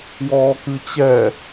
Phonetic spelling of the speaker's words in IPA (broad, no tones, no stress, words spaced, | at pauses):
wɔːkɨt͡ɕɛ